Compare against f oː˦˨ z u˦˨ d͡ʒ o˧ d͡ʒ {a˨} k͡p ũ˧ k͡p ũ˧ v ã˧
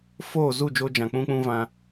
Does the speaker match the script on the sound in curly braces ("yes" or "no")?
no